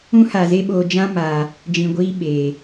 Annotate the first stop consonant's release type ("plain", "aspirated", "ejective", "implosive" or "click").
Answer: implosive